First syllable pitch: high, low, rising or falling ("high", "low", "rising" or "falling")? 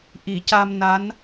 low